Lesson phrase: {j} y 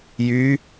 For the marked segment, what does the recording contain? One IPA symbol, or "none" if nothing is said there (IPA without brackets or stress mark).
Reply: j